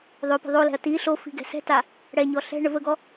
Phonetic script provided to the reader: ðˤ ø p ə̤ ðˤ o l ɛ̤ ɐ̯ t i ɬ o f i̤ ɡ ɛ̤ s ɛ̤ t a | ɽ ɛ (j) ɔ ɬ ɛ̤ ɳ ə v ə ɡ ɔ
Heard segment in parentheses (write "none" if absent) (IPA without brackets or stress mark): ɲ